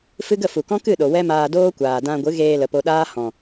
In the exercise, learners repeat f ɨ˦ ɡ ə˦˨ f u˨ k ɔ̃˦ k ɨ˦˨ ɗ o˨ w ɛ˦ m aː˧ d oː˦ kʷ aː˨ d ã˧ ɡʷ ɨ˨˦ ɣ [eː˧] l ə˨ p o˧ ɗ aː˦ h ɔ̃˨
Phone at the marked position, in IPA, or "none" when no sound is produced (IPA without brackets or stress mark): eː˧